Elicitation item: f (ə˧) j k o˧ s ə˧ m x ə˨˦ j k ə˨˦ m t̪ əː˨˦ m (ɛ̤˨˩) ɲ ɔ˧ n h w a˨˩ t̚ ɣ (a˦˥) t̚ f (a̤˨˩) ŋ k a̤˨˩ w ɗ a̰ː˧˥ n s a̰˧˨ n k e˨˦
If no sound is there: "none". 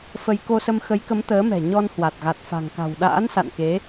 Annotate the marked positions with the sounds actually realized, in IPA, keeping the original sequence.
ə˧, ɛ̤˨˩, a˨˩, a̤˨˩

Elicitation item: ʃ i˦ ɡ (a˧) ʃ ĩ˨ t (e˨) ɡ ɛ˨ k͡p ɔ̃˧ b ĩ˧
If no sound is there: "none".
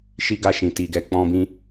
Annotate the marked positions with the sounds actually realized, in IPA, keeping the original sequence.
a˧, i˨

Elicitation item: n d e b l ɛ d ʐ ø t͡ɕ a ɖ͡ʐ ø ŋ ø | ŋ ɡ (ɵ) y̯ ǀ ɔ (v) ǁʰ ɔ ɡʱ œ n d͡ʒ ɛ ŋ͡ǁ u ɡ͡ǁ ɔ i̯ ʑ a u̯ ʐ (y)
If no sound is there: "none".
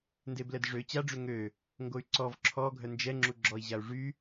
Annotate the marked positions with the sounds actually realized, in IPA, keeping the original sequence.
o, v, y

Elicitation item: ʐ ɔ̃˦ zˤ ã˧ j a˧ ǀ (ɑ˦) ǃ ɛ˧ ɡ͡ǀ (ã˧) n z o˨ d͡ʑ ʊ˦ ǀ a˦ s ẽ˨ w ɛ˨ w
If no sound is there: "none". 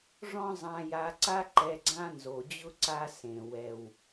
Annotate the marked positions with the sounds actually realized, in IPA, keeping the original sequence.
a˦, ã˦

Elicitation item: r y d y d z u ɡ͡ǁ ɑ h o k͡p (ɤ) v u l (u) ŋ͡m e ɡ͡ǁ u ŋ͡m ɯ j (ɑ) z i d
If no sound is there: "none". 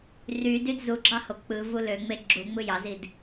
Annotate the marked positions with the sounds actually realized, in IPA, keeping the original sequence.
ɯ, ø, ɑ

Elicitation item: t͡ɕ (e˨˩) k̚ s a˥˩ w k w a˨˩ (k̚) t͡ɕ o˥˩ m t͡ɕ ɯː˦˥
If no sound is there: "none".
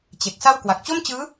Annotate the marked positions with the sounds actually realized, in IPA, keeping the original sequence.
e˨˩, k̚

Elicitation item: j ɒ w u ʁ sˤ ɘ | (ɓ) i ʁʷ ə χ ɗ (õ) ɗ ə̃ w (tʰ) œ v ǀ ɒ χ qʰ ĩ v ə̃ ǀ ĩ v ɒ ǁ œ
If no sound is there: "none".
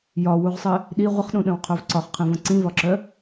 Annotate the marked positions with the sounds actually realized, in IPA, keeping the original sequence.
ɗ, ũ, qʰ

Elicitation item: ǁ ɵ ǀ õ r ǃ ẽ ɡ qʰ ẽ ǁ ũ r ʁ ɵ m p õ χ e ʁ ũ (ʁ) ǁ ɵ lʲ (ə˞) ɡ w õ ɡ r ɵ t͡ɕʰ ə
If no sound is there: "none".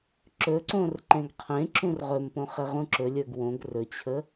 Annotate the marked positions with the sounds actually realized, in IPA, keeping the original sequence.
none, ə˞

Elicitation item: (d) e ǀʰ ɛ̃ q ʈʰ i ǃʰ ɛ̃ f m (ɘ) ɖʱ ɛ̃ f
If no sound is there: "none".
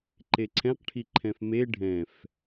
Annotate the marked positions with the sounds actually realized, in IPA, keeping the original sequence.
ǃ, e

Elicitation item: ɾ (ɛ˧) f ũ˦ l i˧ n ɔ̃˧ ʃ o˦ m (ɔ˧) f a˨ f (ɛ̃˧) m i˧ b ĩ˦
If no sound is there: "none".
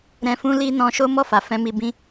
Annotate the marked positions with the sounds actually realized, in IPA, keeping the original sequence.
ɛ̃˧, ɔ˦˨, ɛ̃˧

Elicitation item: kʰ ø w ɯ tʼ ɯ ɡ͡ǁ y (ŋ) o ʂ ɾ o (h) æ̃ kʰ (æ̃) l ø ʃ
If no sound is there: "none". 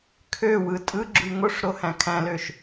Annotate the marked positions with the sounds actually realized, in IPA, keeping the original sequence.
ŋ, h, æ̃

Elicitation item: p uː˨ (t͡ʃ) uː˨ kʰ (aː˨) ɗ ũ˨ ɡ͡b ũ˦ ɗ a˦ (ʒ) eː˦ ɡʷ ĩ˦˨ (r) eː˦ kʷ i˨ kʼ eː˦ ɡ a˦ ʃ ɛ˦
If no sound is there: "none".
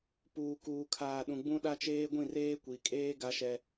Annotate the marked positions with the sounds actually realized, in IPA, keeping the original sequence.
k, aː˨, t͡ʃ, r

